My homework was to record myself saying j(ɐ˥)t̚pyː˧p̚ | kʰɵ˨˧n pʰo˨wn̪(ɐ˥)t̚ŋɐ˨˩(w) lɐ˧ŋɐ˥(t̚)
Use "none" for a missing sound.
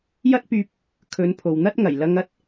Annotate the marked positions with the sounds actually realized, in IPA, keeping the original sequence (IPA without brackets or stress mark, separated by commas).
ɐ˥, ɐ˥, j, t̚